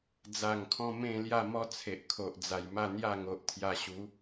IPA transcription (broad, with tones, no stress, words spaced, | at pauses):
d͡za˨˩ŋkʰɔ̃˧ mẽ˥˧lja˥˧ mɔ˦t͡sʰe˨ʔkʰo˨ʔ d͡za˨˩jma˥˧ n̪ja˥˧ŋo˨ʔt̪ʰja˧ ɕu˨˦